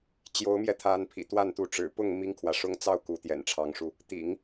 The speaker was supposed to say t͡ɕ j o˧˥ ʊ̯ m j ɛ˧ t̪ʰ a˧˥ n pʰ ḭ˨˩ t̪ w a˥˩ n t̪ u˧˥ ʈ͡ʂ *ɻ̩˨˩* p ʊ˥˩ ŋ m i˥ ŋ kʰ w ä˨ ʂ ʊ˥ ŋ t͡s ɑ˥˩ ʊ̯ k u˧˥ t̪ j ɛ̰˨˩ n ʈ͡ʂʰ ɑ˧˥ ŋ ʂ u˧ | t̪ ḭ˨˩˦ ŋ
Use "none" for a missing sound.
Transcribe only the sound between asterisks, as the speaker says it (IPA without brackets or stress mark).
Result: ɻ̩˨˩